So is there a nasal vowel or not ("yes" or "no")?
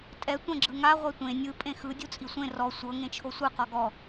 yes